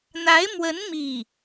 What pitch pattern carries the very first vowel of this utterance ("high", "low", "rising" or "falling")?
rising